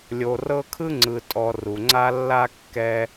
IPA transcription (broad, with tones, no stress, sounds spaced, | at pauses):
lʲ o˨ r ɤ˦ kʰ ɯ˥ ŋ͡ǀ ɯ˨ tʼ ɔ˨ r u˩ ŋ͡ǀ a˦ lː a˥ kː ɛ˦